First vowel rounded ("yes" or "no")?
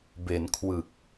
no